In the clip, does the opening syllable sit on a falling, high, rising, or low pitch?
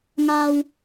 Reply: low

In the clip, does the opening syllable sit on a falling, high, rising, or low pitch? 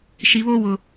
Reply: low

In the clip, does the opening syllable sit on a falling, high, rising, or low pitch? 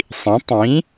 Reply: rising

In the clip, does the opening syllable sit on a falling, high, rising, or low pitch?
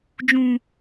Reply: high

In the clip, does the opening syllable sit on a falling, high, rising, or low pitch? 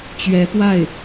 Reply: rising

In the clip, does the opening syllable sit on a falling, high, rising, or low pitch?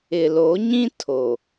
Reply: low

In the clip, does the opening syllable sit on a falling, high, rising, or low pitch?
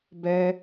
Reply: high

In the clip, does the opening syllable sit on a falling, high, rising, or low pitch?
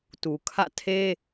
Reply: low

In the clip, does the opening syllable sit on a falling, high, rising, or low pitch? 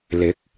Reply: rising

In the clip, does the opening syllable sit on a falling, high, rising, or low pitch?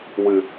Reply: low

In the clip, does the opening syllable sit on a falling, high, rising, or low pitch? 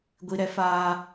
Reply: low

